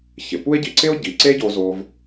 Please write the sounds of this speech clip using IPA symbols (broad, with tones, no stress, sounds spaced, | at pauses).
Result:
ç ɪ˩ p u˥ e̯ ɟ i˧ ǀ ɪ˥ o̯ ɟ i˩ ǀ e˥ ɟ o˧ z o˧ v